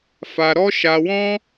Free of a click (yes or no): yes